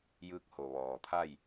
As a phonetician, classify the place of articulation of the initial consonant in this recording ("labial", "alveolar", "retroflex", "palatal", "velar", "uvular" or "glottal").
palatal